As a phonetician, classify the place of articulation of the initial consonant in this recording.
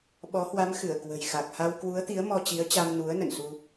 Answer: labial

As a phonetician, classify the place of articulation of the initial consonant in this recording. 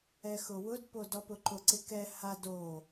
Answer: velar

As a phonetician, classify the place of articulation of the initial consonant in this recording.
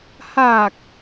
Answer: glottal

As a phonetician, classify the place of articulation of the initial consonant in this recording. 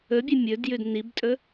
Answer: labial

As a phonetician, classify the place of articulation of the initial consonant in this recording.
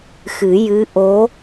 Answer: velar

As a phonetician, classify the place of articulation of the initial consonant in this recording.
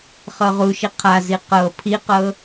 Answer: uvular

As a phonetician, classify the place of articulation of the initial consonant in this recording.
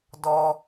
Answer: alveolar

